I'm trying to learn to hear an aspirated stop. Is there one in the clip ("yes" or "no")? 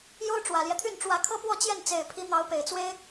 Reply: yes